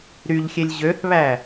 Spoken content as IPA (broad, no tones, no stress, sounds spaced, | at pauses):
ɾ y ʎ xʲ e lʲ ʑ ø θ β æ